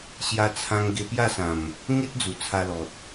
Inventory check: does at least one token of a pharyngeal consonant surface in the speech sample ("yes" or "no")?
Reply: no